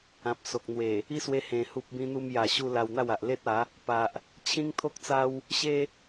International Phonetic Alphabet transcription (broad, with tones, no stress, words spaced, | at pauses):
ã˨p̚so˨k̚ n̪we˨˩ | i˦swe˧ hẽ˨˩ hu˨p̚bĩ˧n̪u˧m ja˨˩ɕu˧ la˧wn̪a˥˧wa˨ʔ le˦t̚a˨˦ | pa˨ʔ | t͡ɕʰĩ˦ŋt̪ʰo˦k̚t͡sa˦w | ɕe˦